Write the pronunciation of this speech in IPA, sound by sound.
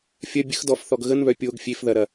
fʲ ɐ bʲ ə x d ɔ f θ ɔ ɡ ɣ ə n β œ pʲ o ɡ fʲ e f ð ɐ ɾ ɐ

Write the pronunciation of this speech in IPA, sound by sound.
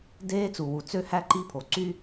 d eː˦ t͡s u˨ w u˨ t͡s ø˦ h æ˦ ǃ i˦ pʰ o˨ ǀ y˦

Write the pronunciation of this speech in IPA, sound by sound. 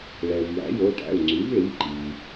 ɭ ɛ˩ v j æ̰˩˥ j o˩˧˩ ʈ æ̰˩˧˩ u̯ ŋ͡ǀ y˩˥ v ɭ i˩˧˩ ǃ i˩

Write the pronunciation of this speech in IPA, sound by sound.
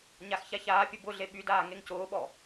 ɲ a x ç a ç aː pʲ ʊ b ʊ ɮ e ɓ y d aː ŋ e ŋ c ʊː ɓ ɔ

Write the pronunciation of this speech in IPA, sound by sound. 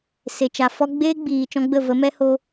s e˨ t͡ʃ a˨ f ɔ˦ ɡ͡b eː˦ ɡ͡b iː˨ t͡ʃ ɔ̃˦ ɡ͡b ə˦˨ v ə˨˦ m ɛ˦ h o˧

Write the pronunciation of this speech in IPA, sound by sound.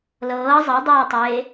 l ɤː zˤ ɤ dˤ ʊː tˤ eː

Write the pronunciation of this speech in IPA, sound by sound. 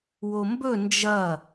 w o m b ɵ n d͡ʒ ɐ

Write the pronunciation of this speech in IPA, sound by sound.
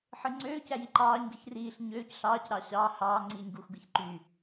ħ ɯ ŋ͡ǀ øː c æ j i ǃ ɑː ɲ ɡ ɯ ç r iː ɬ ɲ øː c ɬ ɑː c ɾ ɑ ɕ ɑː h ɑː ŋ͡ǀ iː ɲ ɡ u x ɡ ɯ ç ǃ y

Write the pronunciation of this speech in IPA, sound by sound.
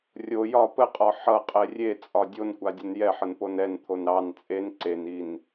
rʲ o j ɒ p ə qʼ ɒ ħ ʌ qʼ ɛ rʲ e t͡sʼ ɒ dʲ o n kʷ a dʲ ə n j ɛ ħ ə n p o n ɛ n t̪ʰ o n ɾ ɑ n t͡sʼ e n ǀ e n i n

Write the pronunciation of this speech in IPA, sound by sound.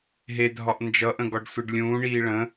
ɦ e dʱ ɒ ʔ n d͡ʒ ʌ ʔ ə̃ ɡ ɒ ɖ sʷ e ɖ lʲ ũː ɳ iː ɭ ə̃

